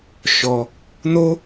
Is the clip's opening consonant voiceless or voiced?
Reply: voiceless